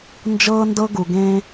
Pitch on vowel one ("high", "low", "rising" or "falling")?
high